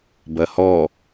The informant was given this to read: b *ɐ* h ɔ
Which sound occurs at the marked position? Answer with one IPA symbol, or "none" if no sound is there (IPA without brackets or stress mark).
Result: ɐ